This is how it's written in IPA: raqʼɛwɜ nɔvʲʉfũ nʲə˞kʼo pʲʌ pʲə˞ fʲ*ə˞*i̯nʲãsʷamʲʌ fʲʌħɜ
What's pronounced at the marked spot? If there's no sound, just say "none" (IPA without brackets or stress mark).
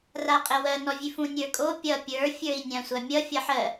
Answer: ə˞